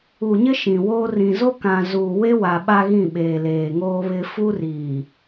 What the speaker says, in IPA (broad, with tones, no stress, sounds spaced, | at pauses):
u˨ ɲ ɪ˦ ʃ ĩ˨ w oː˦ r ĩ˨ z o˦ k ã˨ z uː˨ w e˦ w aː˨ ɓ a˦ ɣ ĩ˦˨ ɓ eː˨ l eː˨ ŋ oː˦ β ɪ˦ f u˦ r iː˨